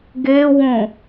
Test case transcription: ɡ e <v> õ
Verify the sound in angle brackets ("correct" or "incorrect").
incorrect